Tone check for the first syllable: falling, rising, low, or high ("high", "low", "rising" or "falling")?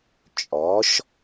rising